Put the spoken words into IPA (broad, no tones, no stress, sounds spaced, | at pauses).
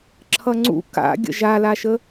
ǁʰ ʌ ŋ͡ǀ ṵ k a̰ ɡʲ ə̰ ʒ a l a ʃ ə